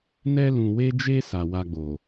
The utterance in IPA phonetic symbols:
n ɛ˧ l ũ˨ w e˧ d͡ʒ e˧ s a˨ w a˧ ɡ͡b o˨

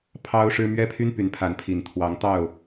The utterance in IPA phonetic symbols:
pʰ ɑ˦ ʊ̯ ʂ ɻ̩˦ m ɥ ɛ˦ pʰ y˦ n p y˨˦ n pʰ a˨˦ n pʰ i˨˩ n t̪ʰ w ɑ˨˦ ŋ t̪ ɑ˥˨ ʊ̯

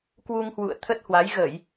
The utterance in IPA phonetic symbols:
k w u˧ ŋ h w ṵ˧˨ ə̯ t̪ʰ ə˦˥ t̚ h w a˨˦ j ɣ ə˧˩˨ j

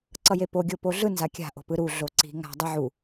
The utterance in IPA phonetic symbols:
ǀ ʌ j e p o ɡʲ o p o ɮ ɯ n z a kʲ a̤ ʔ o̤ p ɯ ɾ u ɮ o ǀ i̤ ŋ a̤ dˤ ɯ ʕ u

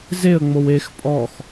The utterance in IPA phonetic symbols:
z e ə̯ ŋ͡m o w e x pʼ ɔ x

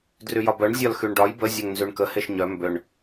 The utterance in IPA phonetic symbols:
d r y j ɒ b œ ɳ zʲ ɒ l x y ɳ ɖ ɒ j b ə zʲ œ ŋ n z y ɳ k ə h e ʃ ɲ œ m b ʏ ɳ

